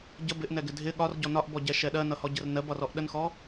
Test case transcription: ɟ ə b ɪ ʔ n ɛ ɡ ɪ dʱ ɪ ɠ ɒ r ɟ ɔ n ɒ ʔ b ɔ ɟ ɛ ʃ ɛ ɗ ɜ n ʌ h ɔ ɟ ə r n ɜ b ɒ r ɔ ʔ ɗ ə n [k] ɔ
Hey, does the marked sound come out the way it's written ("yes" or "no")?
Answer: no